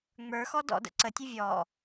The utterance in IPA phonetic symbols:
ŋ͡m ə˞ x ɔ d ɔ̰ d ə̰ ǀ ə tʲ ɨ vʲ ɔ

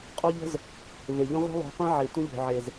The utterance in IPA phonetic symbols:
qʼ o˦ ʎ ə̤˦ z | v e˨ ʎ ə̃˦ ʁʷ e̤˦ lˠ o̤˨˦ qʷ ẽ˦ ʕ e˨ tʷ ə̃˦ ʎ o̤˨ ʕ e˨ z

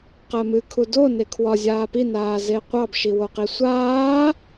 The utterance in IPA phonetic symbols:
q ɜ m ɨ kʰ u d o n e kʰ w ɒ zʲ aː p i n aː z e qʷ ɑ b ʃ i w o q i sʷ aː

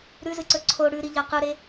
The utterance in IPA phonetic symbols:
ɾ ʉ z ɨ ǀ ɵ ǀʰ o ɽ ʉ ɾ i ʎ ɐ q ɨ ɾ e

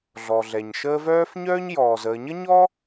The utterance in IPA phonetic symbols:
ɮ ɔ˩ ɮ ɛ˩ ɲ ʃ əː˦ v œː˥ f ɲ œː˥ ɲ j ɔː˩ z əː˨ ɲ ə˥ ɲ ɔ˥

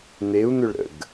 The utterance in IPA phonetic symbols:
n̪ e u̯ n̪ ʏ ɭ ɾ ə̰ ɡ

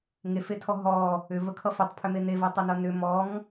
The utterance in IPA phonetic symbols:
ŋ e f e tʰ ɔ ɦ ɔ | ʏ v ə kʰ ʌ f ʏ tˤ pʰ ʏ m e n e v ɜ tˤ ɐ n ʌ n ʏ m ɔ ŋ

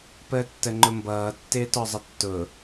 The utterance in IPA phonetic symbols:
p əː tː ə ŋ͡ǃ ʊ m b ʌː tː ɪː t ɔ zˤ ə tː ʊ

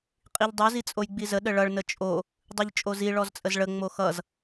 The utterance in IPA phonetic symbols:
qʼ i ʎ dˤ o z i t͡sʼ o j ɡ͡b i z ə ɗ ə ɭ ʌ ɭ n ə t͡ʃʼ o | dˤ i ʎ t͡ʃʼ o z i ɭ ɔ z t͡sʼ ə z ɭ ə ŋ͡m o x ʌ z

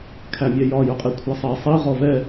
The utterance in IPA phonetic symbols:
kʰ æ mʲ ɛ j ɒ j ʊ qʼ i kʷʰ æ sˤ ɛ sˤ i ʁ ɔ v ɛ

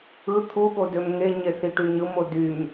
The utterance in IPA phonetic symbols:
ɯ t̪ʰ u ɠ o d ø m ŋ e ɲ e θ i ʈ y ɲ ɯ m o d y m

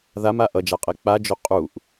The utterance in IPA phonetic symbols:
ð a m a ʔ ʌ d͡ʒ a qʼ e k͡p a d͡ʒ o qʼ u ʔ

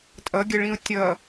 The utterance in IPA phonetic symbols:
tʼ ʌ ɡʲ ə ɭ ĩ ʊ̯ tʲ ʌ

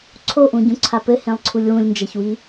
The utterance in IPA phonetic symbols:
ǀʰ o ʔ ũ ɟ ũ ǀʰ a p ɘ h ẽ lˠ ǀʰ u lʲ w ũ lʲ n d͡ʒ ɐ ç w i

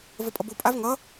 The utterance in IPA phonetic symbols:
v ə pʼ ʌ b o pʼ a v ŋ ʌ

